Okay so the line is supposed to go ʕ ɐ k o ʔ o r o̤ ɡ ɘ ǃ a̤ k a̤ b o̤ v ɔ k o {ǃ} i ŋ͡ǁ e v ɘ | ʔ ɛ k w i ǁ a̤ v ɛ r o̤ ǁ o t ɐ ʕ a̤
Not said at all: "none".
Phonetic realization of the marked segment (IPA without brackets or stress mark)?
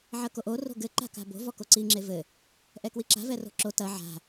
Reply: ǀ